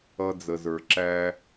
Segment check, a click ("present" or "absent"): present